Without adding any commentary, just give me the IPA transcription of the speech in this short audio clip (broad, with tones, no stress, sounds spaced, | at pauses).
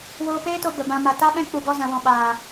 w oː˧ p eː˦ t o˧ b ə˨ b ã˧ m a˨ t a˦ ɓ ɛ̃˦ k͡p u˧ ɡ ɔ˦ z ã˧ w ɔ̃˨ ɓ aː˨